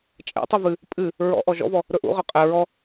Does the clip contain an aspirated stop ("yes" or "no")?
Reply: no